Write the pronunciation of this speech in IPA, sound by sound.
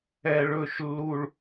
ɛ˨ ɭ ɵ˦˨ ʃ lː u˦ ɭ

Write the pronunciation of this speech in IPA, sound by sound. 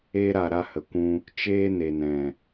e˧ ɾ a˨ ɾ a˧ h ə˨ kʷ ũ˧ | t͡ʃ eː˦ n e˨ n ɛ̃˨

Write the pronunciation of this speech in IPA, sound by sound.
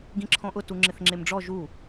ɡ ĩ ǁʰ ɔ̃ ʔ ʊ t u ŋ͡ǁ ɪ θ ŋ͡ǁ e m ɖ͡ʐ ɔ ʒ u

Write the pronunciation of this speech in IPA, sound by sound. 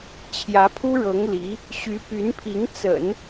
t͡ɕʰ j ä˧˥ pʰ u˥ ɻ ɤ˧˥ ŋ l i˧˥ | ɕ y˧˥ p y˧˥ n pʰ i˧˥ ŋ t͡s ə̰˨˩˦ n

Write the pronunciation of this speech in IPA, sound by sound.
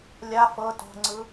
lʲ a f ɤ t o̤ ŋ͡ǀ ɯ

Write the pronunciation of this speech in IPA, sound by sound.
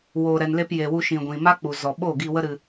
w oː˨ ɾ ɛ˨ n l e˧ p j e˨ w u˧ ʃ ĩ˨ ɡʷ ĩ˨ m a˦ k͡p u˨ z ɔ˨ ɓ oː˦˨ ɡ i˧ w ə˦ ɾ ɨ˧

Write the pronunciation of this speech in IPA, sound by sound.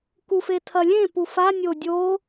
k u f e tʰ ɐ lʲ ẽ p u f a nʲ o dʲ o

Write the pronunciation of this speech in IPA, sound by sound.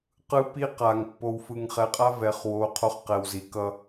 q ɯ˦ p i˦ q a˨ ŋ pː o˨ w f ɯ˨ ŋ χ ɛ˨ qʼ a˦ v ɛ˨ χ w o˨˦ qʰ o˦ χ q ɛ˨ w z i˨ k ʌ˦

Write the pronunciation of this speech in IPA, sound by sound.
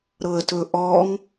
ɾ ɤ ə̯ t ɵ ʔ ɔ ŋ

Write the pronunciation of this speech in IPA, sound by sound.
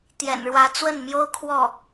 t̪ j ɛ̰˨˩ n ɻ w ä˧˥ t͡s w ə˥˩ n m j o˥ ʊ̯ kʰ w ɔ˥˩

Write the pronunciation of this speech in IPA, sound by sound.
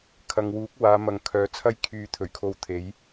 kʰ ɐ˨ ŋ w uː˨˥ k̚ w aː˨˧ m ɐ˨ ŋ kʰ œː˨˥ t͡sʰ ɐ˥ j kʰ yː˨˧ t̪ʰ ɵ˨˩ ɥ kʰ o˧ w t̪ʰ e˨˥ j

